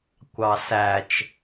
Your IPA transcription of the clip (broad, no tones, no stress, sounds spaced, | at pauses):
kʷ ɑ s æ t͡ʃ